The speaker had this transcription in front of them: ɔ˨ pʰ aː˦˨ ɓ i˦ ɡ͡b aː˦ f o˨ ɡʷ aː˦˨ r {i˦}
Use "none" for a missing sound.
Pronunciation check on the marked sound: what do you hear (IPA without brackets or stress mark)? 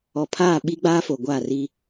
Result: i˦